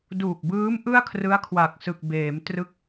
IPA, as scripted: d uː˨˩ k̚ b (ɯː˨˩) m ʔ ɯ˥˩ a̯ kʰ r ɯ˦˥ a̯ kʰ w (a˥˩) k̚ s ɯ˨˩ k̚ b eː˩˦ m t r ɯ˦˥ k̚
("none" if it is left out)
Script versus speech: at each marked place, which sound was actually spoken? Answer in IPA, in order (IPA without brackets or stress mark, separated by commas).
ɯː˦˥, a˨˩